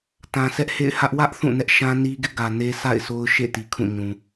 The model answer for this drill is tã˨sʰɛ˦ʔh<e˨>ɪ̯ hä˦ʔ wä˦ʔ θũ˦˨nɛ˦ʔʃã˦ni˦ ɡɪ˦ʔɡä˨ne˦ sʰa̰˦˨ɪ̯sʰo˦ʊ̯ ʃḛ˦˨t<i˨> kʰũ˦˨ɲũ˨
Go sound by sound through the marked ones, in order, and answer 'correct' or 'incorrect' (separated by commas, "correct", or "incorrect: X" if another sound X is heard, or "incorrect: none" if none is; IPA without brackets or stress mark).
incorrect: ḛ˦˨, correct